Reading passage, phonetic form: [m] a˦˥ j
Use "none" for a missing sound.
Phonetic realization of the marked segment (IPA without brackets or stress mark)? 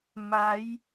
m